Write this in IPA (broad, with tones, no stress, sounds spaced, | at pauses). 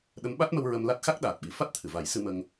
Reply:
ɗ ə˧˥ m ɓ a˦˥ t̚ m ə˧ w ɹ ə˧ m l a˦˥ t̚ x a˦˥ k̚ ɗ aː˨˩ t̚ ɓ i˨˩˦ f a˦˥ t̚ t̪ʰ ɨ˨˩˨ v a˨˩˦ j s ɨ˧ m ə˧ ŋ